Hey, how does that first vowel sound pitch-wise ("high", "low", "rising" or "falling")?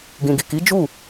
low